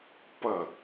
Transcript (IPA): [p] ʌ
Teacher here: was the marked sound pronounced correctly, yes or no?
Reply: yes